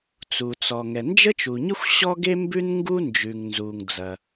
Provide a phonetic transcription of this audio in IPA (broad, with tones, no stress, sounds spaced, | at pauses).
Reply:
t͡s u˩ t͡s ɔ˩ ŋ ɛ˩ n d͡ʒ ə˥ t͡ʃ u˩ ɲ ə˥ xʷ ɕ ɔ˥ ɡ e˥ m b ʉ˥ n ŋ ɡ u˥ n d͡ʒ ʉ˩ ŋ n z u˩ ŋ d͡z ɐ˩